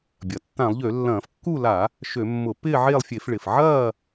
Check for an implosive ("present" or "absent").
absent